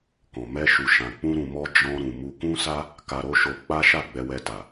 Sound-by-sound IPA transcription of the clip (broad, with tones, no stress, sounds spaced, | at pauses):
k ɔ̃˨ m ɛ˧ ʃ u˨ ʃ ã˨ k͡p ũ˧ ɾ ũ˨ m ɔ˧ d͡ʒ ɔ̃˧ ɾ ũ˨ m u˧ k ũ˦ s a˦ | k a˧ ɾ o˦ ʃ o˧ k͡p a˦ ʃ a˦˨ ɡ͡b ɛ˧ w ɛ˧ t a˨